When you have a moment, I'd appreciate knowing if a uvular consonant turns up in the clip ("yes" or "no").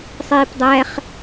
yes